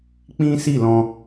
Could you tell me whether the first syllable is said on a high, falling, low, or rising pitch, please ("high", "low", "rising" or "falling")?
high